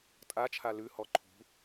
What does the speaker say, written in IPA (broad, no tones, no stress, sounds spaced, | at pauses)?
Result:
tʼ a t͡ʃʰ a l ʉ h ɔ ǃʰ ṳ